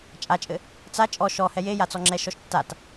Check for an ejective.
present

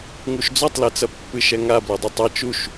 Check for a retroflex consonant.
absent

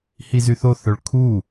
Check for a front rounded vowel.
present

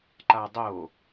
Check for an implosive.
absent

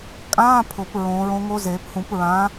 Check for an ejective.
present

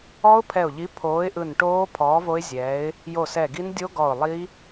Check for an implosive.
absent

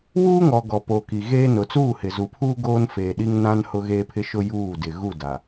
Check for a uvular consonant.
absent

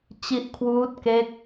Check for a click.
absent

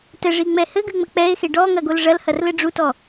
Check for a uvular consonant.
absent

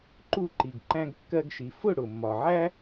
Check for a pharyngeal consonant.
present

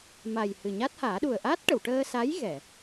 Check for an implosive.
present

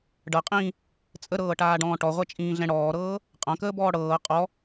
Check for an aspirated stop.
absent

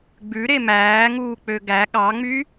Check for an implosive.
present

